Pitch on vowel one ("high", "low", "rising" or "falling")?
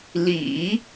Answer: low